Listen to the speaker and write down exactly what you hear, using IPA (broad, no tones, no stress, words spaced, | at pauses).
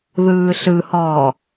ðɯːɬɯhɔː